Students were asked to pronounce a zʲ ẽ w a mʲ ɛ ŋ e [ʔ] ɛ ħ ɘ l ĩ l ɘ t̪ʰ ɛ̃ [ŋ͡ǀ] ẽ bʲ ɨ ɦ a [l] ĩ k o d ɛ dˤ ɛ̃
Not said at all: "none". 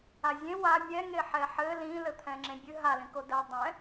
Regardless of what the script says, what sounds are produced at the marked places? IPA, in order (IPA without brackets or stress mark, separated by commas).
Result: ħ, ŋ͡ǁ, l